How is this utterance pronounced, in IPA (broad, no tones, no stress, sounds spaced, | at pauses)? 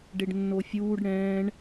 ɖ e ɖ nː o fʲ uː ɖ ɽ ɛ̃ː ɳ